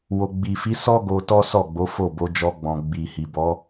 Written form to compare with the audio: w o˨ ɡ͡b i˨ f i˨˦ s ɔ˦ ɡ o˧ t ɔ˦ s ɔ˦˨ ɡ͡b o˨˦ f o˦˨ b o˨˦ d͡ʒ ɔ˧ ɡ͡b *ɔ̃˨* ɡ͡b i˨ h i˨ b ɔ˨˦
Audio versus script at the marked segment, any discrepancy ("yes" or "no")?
no